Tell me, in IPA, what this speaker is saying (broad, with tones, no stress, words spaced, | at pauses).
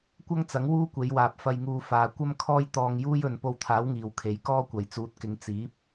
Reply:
kʷɐ˥ŋt͡sɐ˨˥ŋ wuː˥kʷe˨˧jwaː˨p̚ fɐ˧jŋuː˧ faː˨kʷɐ˥m kʰɔː˥jt̪ɔː˧ŋjuː˥j ɵ˨n po˧wt̪ʰaː˨˥w ŋiː˨wkʰe˨˥jkɔː˥ kʷɐ˨jt͡suː˨˥t̚kɪ˨˧ŋ t͡siː˨˥p̚